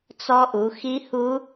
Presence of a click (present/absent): absent